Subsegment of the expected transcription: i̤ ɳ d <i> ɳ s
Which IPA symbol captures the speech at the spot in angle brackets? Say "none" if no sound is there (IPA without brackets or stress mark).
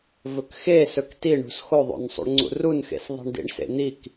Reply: ḭ